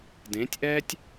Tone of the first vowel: rising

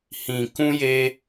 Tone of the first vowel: low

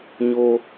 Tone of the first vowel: high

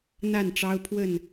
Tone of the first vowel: falling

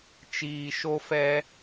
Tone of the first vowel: low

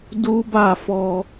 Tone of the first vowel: high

